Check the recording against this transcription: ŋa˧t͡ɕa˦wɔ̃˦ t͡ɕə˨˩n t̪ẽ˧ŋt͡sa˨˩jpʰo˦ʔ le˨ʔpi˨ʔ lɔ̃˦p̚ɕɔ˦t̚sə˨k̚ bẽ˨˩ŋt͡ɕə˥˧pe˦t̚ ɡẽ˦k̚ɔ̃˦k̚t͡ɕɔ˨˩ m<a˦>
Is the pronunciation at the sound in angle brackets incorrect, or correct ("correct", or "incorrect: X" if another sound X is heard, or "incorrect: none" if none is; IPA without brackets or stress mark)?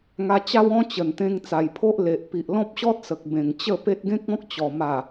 incorrect: a˨˩